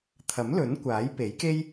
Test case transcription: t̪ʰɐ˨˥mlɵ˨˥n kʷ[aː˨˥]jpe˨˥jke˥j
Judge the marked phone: correct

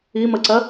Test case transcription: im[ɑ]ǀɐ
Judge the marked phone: incorrect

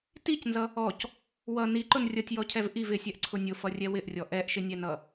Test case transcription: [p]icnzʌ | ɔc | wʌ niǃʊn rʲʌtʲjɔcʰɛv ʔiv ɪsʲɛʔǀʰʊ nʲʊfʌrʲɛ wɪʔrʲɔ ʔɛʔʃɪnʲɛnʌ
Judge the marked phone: incorrect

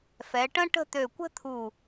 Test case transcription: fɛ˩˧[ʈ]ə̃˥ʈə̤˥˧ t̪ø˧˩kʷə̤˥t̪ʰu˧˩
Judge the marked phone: correct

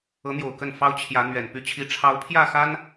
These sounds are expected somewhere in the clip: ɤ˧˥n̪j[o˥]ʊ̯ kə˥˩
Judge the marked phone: incorrect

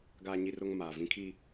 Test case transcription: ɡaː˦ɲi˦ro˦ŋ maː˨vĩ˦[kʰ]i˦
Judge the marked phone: correct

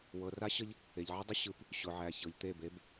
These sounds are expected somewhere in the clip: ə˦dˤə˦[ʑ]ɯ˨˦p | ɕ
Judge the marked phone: incorrect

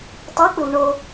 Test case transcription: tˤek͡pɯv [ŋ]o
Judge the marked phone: incorrect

